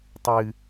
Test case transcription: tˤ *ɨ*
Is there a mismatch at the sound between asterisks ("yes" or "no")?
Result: no